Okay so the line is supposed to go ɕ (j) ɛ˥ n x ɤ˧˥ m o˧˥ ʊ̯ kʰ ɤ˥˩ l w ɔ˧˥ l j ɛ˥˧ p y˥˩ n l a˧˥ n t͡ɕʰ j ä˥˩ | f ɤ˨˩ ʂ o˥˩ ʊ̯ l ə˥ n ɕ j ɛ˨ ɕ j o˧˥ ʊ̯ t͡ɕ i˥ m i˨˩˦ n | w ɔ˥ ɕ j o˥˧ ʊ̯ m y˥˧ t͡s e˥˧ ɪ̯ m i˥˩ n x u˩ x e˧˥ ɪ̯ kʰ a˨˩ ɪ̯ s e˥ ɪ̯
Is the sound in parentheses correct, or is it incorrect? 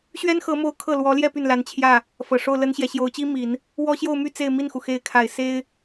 incorrect